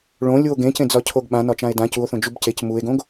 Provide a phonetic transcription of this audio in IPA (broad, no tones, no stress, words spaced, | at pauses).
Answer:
ɭõ lʲuo̯ɡẽcẽ d͡zɒcʰoɡɓã nɒt͡ʃãe̯dã cuo̯θõ d͡ʒubcec mue̯ɡõɡ